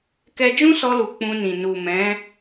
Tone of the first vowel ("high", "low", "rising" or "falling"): high